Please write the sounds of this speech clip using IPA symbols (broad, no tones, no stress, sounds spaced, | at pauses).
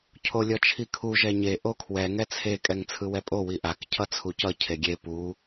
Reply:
cʰ o lʲ ʌ t͡ʃʰ i kʰ u ʒ ɛ ɲ e ʔ o kʰ w ɛ ŋ ɛ t͡sʰ e kʼ ɛ ŋ t͡sʰ ɯ w ɛ pʼ o w i ʔ a k cʰ ʌ t͡sʰ u c ʌ cʰ e ɡʲ e p u